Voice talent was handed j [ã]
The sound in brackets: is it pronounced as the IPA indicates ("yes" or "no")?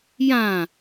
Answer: yes